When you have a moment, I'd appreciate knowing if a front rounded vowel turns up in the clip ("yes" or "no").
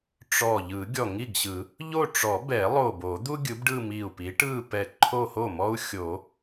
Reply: no